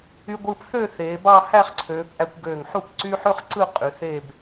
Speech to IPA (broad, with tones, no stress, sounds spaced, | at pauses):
y˧ ɡʷ ɯː˧ p θ ø˥˧ θ eː˩˧ b ɑ˥˧ h æ˥˧ χ ǀʰ øː˩˧ p ʔ æ˧ kʷ ɡ øː˧˩ ŋ ħ u˥˧ p ǀ y˥ ħ ø˥ χ ǀ ɯ˥˧ qʼ y˩˧ θ eː˥˧ b